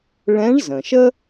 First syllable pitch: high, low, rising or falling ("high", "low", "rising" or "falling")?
rising